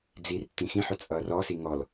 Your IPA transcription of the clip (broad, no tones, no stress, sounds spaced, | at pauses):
d͡z i r tː ĩ x ĩ ħ ɵ t͡sʼ ʌː r ɔ s i ŋ ɔ l